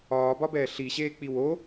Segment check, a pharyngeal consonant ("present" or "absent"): absent